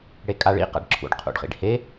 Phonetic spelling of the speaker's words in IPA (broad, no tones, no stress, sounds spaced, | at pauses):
ɽ e kʼ a ɭ ḭ q a̰ ɖ ǁʰ ṵ ɖ qʰ ṵ ɖ χ ḭ ɖ h e